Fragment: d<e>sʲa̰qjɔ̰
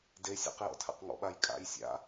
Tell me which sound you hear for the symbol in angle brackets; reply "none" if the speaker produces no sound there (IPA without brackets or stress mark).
e